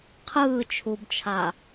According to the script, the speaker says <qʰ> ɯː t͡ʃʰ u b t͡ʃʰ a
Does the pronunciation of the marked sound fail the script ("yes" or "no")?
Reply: no